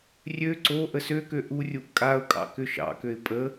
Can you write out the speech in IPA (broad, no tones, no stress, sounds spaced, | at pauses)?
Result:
rʲ ø ǀ o ʔ ə s ø k ø ʔ u rʲ u ʔ kʼ a ʊ̯ kʼ ɑ̰ k ʏ ʃ ɑ̰ k ø ɪ̯ pʼ ə